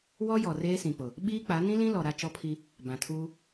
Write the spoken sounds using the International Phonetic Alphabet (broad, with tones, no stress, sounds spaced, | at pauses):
w ɔ˦ j ɔ˨ r eː˦ s ĩ˨ k͡p ʊ˨ | ɓ iː˦ k͡p a˨˦ n ĩ˦ l ĩ˦ l ɔ˨ ɾ a˦ t͡ʃ ɔ˦ pʰ i˦ | b ã˨ tʰ uː˦